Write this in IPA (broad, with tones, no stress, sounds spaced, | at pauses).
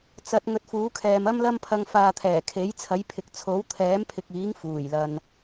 t͡s ɐ˨˥ t̚ ŋ ɵ˨˥ t̚ f uː˨˥ kʰ ɛː˨ m ɐ˥ m l ɐ˥ m pʰ ɐ˧ ŋ f aː˧ t̪ʰ ɛː˨˩ kʰ e˨˥ j t͡sʰ ɐ˨˥ j pʰ ɪ˨ k̚ t͡sʰ o˨˥ w t̪ʰ ɛː˨˥ m pʰ ɪ˨ k̚ iː˨˥ ŋ f uː˨˩ j l ɐ˨ n